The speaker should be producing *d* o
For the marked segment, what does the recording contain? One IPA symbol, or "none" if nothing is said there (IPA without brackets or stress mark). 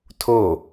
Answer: tʰ